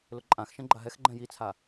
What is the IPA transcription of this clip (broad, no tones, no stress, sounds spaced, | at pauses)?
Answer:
l ʊ ǃʼ ã x ʃ ɛ̃ ɡ͡ǃ a ɦ ɛ x ɡ͡ǃ ɛ̃ j i t͡sʰ a